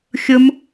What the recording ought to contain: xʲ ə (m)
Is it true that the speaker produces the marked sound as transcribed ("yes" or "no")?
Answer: yes